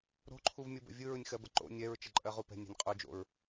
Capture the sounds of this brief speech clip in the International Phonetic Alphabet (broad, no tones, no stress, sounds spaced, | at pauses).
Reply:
ɾ o̤ ǃʰ u v mʲ ɯ b ə̰ vʲ ɯ ɹ ɯ nʲ x ɜ b ə ǃ o̰ nʲ ɛ ɹ t͡ʃ ə ǃʼ ɜ ʁ u p ɛ̤ nʲ ɛ̤ nʲ qʼ u d͡ʒ o̰ ɹ